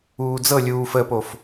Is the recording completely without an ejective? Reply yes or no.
yes